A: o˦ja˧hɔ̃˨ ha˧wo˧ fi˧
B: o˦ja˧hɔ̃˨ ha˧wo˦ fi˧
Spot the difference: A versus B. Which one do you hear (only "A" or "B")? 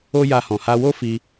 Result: B